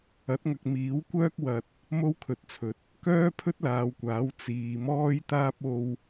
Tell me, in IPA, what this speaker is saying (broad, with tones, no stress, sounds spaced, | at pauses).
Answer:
ɐ˨˥ t̚ ŋ ɐ˨ k̚ m iː˨˥ w kʷ œː˥ k̚ w ɐ˨ t̚ | m o˥ w kʰ ɵ˨˥ t̚ t͡sʰ ɵ˨ t̚ | k œː˥ pʰ ɵ˥ t̚ l aː˨˧ w kʷ aː˨˥ w t͡s iː˨ m ɔː˥ j t̪ aː˥ p̚ o˧ w